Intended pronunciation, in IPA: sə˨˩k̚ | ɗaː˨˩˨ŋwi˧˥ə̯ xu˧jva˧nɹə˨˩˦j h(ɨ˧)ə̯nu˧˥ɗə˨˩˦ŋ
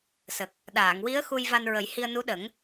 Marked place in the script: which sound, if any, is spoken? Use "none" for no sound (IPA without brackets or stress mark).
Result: i˧